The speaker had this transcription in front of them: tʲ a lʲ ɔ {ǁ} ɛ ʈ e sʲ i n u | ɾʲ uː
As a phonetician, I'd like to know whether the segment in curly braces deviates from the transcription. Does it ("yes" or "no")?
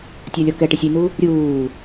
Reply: yes